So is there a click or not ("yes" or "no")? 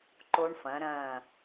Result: yes